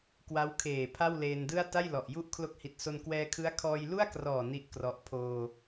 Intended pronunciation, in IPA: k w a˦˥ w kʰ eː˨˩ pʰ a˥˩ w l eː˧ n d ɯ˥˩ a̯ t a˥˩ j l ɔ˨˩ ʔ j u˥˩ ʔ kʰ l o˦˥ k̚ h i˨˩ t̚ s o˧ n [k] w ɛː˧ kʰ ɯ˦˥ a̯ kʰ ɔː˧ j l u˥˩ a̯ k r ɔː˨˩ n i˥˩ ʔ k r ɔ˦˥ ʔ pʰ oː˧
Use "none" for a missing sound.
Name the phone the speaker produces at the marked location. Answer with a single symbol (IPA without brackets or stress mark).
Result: k